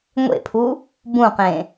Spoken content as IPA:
ŋʷḛpʰu | bũqẽ

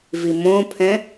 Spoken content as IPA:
vimõpʰɛ̃

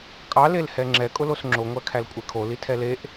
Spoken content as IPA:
kʼɑ lelhɛŋ͡ǁɛ kʼʊlosŋ͡ǁo ŋʷækʰælkʷʼekʰo litʰɛleʔ

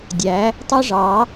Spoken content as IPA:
dʲæ˨˦ | tˤɯ˦ʐɑ˨˦

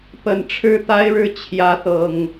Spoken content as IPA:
pə˨˩nʈ͡ʂʰɻ̩˦t̪a˦ɪ̯ɻɻ̩˥˨ t͡ɕʰjä˨˦t̪ɤ˨˩ŋ

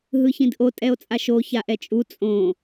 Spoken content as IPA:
ɦɯçĩdʔo tʼɛo̯t͡sʼaʃo çaʔɛt͡ʃʼu t͡sʼõ

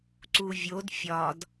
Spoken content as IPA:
ǀuvʲod fʲɒd

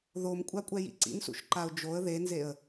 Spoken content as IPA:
ðomkʷʼakʷʼɛ jḭǀḭnsṵʃ ǃaʊ̯d͡ʒoə̯ ðenzeə̯

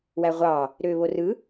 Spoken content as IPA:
wæʁʷɑ | ɾøːβorɯ

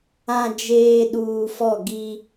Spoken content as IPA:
ã˨ d͡ʒeː˨ ɗuː˨fɔ˦˨ ɡi˦

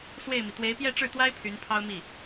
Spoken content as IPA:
swe˥˩ɪ̯mi˩ t̪we˧˥ɪ̯pjɛ˥˧ʈ͡ʂɻ̩˥˩t̪wa˥ɪ̯ pʰy˧˥npʰɑ˥ʊ̯mi˥˩

